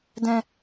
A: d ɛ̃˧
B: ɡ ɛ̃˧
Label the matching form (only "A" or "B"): A